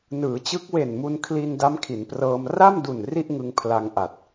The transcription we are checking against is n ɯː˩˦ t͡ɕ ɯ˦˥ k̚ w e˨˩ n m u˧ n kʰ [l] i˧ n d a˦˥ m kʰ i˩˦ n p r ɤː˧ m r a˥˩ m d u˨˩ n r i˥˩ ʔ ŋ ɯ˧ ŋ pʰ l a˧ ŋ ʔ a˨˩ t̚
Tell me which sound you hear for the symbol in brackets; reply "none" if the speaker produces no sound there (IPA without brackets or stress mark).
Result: l